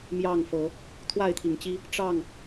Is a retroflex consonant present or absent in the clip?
present